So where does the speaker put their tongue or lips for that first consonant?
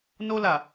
tongue tip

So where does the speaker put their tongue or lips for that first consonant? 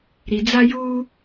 tongue tip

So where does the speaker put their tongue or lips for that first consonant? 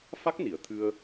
lips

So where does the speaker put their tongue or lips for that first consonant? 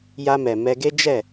palate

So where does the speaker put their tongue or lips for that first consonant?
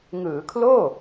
velum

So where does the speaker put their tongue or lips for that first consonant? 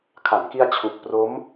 velum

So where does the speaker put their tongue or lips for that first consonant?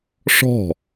retroflex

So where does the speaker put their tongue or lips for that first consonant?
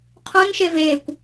uvula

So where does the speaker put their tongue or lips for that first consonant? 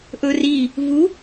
throat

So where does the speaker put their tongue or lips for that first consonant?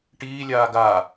retroflex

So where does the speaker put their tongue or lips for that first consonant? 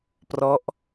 lips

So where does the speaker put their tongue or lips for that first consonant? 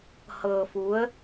throat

